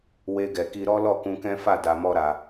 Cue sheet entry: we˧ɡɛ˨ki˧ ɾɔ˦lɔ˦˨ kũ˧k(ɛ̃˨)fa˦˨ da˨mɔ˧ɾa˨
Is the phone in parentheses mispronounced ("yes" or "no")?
yes